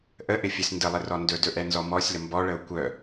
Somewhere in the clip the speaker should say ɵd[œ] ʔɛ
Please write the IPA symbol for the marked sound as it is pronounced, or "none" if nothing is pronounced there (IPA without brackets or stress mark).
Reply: ɵ